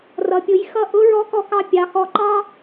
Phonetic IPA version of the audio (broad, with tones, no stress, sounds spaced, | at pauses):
r ʌ˩ pʲ ʊ˩˧ j x ʌ˧ ʔ ʊ˧˥ ɹ ɔ˧˥ k ɔ˧ k ɑ˧ pʲ ɑ˩˧ x ɔ˧ ǃ ɑ˥